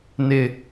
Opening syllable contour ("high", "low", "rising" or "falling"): falling